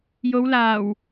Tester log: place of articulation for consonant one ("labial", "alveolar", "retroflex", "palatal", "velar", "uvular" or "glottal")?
palatal